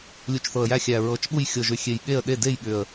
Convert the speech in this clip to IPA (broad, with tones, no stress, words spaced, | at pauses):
lʲu˨˩t͡ʃθɤ˨˩ə̯jæ˥˩ xʲæ˨˩ ɹɤ˨˩t͡ʃɓu˥˩j xʲɤ˨˩ʒʏ˨˩xʲe˨˩j ɠe˥˩ə̯ ɗe˥˩de˥˩jɠʏ˨˩ə̯